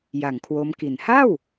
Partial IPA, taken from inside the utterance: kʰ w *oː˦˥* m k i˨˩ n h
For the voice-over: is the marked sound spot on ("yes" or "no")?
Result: no